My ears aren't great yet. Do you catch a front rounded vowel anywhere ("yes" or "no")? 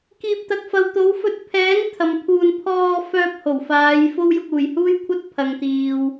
yes